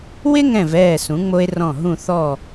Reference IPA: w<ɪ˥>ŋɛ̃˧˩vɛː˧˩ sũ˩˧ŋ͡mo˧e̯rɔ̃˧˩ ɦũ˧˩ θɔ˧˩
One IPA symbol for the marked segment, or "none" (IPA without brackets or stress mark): ɪ˥